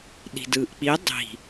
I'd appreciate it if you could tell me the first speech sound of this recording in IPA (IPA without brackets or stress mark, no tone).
ɗ